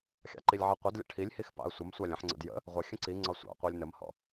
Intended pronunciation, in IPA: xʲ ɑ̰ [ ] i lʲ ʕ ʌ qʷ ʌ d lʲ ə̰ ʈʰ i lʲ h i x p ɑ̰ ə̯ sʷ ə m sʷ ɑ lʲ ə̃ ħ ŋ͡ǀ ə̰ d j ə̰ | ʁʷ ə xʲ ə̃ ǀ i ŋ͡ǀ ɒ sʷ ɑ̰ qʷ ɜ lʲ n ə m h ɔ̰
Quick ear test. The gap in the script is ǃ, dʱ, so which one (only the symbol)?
ǃ